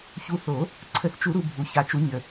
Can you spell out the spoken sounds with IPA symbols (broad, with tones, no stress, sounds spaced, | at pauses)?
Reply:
ç u˨˦ θ o˨˩˦ | ǀʰ ə˨˩˦ θ t͡ʃ u˨˩˦ ɾ u˨ bʱ u˨ ç a˨˩˦ t͡ʃ u˨˦ ɲ ə˨˩˦